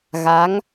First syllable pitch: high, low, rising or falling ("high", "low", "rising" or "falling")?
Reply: rising